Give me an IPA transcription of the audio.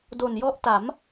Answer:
d o˨˩ n j ɔ˦˥ ʔ t a˩˦ m

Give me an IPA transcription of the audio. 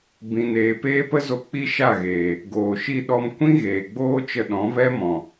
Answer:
b ĩ˨ n eː˨ p eː˦ p ə˦ z o˧ k͡p i˦ ʃ a˦˨ ɣ eː˨ | ɡ oː˨ ʃ i˧ ɗ ɔ˧ m kʷ ĩ˦ ɣ eː˨ ɡ͡b oː˦ t͡ʃ ə˧ ɗ ɔ̃˨˦ v ɛ˦ m ɔ̃˨

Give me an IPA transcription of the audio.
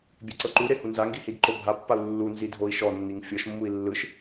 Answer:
bʲ e ǀ ɤ ǃ u ɾ e h u n z a ŋ ɡ i h i d ǃ o bʱ a pː a u̯ lː u n z i dʱ o i̯ ʃ ɔ nː i ŋ fʲ ɤ ʃ mː u i̯ lː ɯ ʃ

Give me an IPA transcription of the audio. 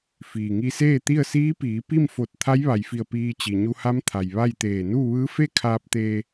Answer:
f iː˩ ŋ i˧ s eː˥˨ t̪ i˥˨ ə̯ s iː˧˥ p iː˩˧ p i˥˨ m f o˧˩ t̚ t̪ʰ a˧˥ j ʋ a˩ j f i˧˩ ə̯ p iː˧ t͡ɕ i˩ ɲ u˧ h a˧˥ m t̪ʰ a˩ j ʋ a˥˨ j t̪ eː˧˩ n uː˥˨ ʋ ɯː˧˥ f e˥˨ kʰ aː˧ p̚ t̪ eː˧

